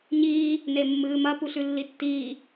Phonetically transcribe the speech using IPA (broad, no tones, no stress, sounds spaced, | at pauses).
ɲ iː | n e mː ɨː m ɐ p u ɬ ʉ lː i tː iː